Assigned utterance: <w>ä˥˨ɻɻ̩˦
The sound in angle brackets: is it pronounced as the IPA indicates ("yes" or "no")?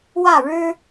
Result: yes